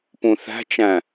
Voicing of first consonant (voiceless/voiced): voiceless